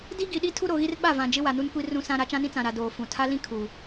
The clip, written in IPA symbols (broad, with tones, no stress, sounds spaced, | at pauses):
d i˦ ɡ i˨ ɗ i˦ tʰ u˦ ɾ o˨ ɣ i˦ r ɓ a˦˨ v ã˨ d͡ʒ ɪ˦ w a˨ n u˦ n kʷ i˦ r ũ˦ s ã˦ ɾ a˨˦ t͡ʃ ã˦ n ĩ˦ t͡s ã˨ ɾ a˨ d oː˦ f ũ˦˨ tʰ a˦ l ĩ˦ kʰ u˨